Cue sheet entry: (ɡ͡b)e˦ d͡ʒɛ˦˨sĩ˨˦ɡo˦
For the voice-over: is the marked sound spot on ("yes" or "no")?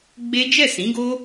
yes